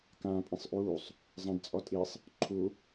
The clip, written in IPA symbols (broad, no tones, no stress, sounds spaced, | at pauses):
k ãː pʼ ĩ sˤ ʔ uː sˤ | zˤ ã d t͡sʼ ɔ tʼ i sˤ | ǃʰ u